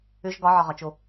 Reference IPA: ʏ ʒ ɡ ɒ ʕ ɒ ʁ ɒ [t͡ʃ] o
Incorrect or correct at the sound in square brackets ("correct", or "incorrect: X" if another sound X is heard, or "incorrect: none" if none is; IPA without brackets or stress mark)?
correct